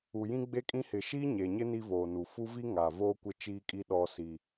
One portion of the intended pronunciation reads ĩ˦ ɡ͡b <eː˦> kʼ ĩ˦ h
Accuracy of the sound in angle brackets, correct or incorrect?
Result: incorrect: e˦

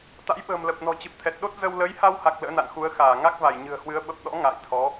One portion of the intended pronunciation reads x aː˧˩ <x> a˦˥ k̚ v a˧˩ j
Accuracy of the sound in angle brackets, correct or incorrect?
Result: incorrect: ŋ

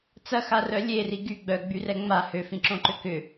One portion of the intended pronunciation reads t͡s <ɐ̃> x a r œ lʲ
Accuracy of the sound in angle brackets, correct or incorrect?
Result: incorrect: ɐ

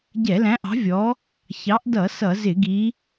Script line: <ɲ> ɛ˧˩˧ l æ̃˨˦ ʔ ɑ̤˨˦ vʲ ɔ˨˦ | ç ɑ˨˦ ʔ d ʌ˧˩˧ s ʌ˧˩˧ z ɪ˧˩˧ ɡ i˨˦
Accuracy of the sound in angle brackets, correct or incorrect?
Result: incorrect: ɟ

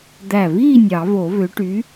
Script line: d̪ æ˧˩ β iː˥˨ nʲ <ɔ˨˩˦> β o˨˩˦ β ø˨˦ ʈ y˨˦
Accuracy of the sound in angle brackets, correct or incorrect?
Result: incorrect: ɑ˨˩˦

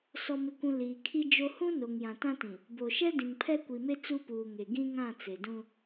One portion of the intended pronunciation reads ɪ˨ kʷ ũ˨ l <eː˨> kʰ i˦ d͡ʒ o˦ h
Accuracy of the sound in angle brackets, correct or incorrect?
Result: incorrect: iː˨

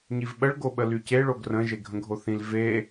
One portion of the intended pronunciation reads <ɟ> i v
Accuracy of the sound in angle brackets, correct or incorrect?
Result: incorrect: ɲ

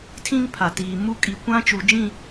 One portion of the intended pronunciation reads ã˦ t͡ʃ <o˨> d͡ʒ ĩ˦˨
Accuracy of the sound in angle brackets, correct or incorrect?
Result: incorrect: u˨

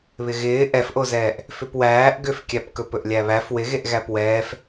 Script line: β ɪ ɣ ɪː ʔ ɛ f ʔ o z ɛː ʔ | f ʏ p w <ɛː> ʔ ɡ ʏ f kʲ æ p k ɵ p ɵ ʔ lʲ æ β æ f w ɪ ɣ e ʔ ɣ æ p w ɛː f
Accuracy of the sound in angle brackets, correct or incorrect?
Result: incorrect: æː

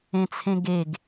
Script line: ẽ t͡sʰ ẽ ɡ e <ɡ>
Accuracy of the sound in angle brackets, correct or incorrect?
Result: correct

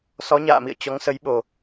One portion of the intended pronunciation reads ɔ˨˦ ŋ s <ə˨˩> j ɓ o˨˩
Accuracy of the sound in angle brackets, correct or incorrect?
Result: incorrect: ə˨˦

